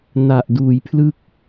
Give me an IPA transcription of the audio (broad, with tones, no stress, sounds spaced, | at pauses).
n a˨˩ ʔ d uː˩˦ j pʰ l ɯ˦˥ k̚